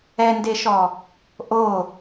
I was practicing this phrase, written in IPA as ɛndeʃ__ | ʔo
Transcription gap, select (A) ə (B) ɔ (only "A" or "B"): B